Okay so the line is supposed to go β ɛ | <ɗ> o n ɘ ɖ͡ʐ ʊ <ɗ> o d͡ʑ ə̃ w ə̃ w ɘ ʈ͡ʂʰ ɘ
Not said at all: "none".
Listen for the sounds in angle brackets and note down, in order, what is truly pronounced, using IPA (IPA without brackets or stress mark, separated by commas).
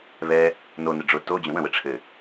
n, t